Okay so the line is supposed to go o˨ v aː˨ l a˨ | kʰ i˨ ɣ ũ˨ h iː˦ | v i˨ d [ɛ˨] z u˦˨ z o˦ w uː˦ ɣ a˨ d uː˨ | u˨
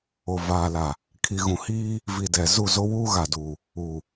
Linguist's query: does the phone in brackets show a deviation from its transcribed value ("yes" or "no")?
no